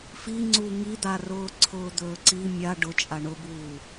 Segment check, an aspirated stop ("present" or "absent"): present